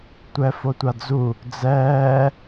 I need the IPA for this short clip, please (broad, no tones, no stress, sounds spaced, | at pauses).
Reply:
tʷ ɛ f o tʷ a d͡z u | d͡z ɛː